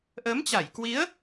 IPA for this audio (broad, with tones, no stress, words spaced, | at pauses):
ʔə˨˦mt͡ɕa˧˩jkwi˨˦ə̯